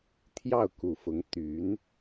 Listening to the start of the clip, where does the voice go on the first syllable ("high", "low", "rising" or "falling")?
falling